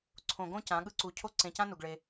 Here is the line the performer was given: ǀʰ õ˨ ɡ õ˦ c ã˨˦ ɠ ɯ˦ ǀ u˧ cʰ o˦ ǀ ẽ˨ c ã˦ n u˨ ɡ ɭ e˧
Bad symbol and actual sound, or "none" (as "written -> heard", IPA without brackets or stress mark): none